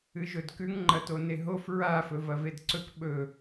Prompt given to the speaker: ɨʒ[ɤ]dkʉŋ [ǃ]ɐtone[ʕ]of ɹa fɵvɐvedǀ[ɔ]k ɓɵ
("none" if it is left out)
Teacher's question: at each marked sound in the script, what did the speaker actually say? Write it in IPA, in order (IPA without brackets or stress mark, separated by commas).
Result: ɵ, ŋ͡ǃ, ɦ, ɵ